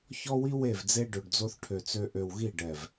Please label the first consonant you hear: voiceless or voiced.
voiceless